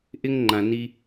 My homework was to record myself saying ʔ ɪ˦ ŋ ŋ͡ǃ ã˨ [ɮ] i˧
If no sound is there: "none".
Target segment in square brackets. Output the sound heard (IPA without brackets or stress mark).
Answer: n